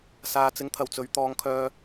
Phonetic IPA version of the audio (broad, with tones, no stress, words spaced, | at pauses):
saː˨˧t͡sɪ˨˥ŋt̪ʰɐ˨˩wt͡sɵ˨˧ɥ t̪ɔː˨˧ŋkʰœː˧